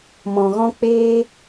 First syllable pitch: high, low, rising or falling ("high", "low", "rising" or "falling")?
low